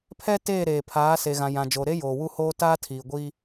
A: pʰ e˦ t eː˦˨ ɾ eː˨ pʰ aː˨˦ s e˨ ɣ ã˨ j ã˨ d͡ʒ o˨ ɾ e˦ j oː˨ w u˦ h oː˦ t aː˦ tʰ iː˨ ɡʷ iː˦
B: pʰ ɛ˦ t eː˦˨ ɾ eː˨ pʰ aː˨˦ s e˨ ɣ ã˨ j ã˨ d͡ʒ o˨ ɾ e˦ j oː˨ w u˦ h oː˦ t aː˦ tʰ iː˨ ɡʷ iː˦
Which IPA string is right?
B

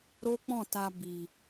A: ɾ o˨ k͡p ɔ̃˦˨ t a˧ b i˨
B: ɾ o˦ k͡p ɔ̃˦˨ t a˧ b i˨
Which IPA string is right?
B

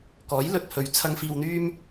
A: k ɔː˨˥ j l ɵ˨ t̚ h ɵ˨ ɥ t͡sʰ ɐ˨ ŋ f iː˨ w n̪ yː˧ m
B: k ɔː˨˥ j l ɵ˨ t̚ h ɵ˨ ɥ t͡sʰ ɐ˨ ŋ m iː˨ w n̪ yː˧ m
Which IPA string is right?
A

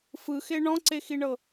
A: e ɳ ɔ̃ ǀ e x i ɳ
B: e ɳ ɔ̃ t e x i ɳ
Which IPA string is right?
A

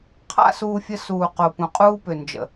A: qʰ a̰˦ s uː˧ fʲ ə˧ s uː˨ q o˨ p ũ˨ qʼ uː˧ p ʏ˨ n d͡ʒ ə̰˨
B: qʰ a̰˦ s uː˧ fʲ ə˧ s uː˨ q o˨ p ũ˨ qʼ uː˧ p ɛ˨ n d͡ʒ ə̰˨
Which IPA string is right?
A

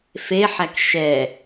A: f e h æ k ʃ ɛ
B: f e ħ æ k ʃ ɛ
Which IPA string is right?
B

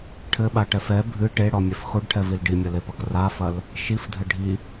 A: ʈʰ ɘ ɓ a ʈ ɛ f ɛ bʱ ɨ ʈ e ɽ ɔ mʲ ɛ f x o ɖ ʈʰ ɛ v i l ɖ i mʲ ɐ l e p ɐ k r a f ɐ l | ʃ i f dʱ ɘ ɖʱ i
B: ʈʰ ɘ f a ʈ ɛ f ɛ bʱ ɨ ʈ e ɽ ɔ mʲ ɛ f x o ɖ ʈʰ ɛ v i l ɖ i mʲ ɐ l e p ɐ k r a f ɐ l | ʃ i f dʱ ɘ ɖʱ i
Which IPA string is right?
A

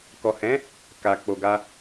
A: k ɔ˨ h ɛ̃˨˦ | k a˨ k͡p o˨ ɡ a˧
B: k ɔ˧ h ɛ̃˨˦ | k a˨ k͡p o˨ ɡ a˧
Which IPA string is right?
A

